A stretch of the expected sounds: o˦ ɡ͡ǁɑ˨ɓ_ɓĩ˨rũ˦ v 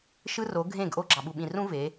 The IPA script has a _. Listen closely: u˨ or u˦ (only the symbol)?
u˨